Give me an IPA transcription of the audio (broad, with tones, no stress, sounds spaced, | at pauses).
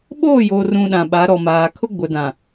ɓ oː˦˨ j oː˨ r ũ˨ ɗ ã˨ ɓ a˨˦ ɾ ɔ˨ m aː˨ kʰ ʊ˦ ɡʷ ɛ˨ d ã˨